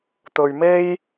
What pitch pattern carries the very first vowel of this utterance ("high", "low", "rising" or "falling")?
low